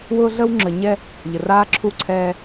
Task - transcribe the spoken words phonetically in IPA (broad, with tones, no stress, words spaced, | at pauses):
wʊː˦ɮə˦w ŋ͡ǁə˨ɲɛ˦ | ʎə˨raː˦ǁʰu˦˨ ǀʰɛː˦